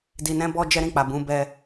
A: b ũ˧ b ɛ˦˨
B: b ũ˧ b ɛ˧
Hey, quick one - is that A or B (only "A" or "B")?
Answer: B